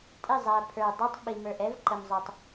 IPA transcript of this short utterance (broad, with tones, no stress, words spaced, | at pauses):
tʼɪ˦˨zˤæ˨ pʰə˞˨ dˤɛ˦tˤɓi˨mə˞˨ʔ ɛ˦v ǃə˨mzˤʊ˨tˤ